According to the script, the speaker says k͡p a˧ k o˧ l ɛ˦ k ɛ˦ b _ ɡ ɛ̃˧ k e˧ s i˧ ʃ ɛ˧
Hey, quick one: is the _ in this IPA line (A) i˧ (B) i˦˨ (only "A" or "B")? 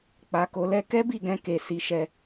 B